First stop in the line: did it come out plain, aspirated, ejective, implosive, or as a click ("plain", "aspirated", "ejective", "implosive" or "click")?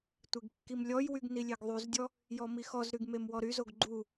plain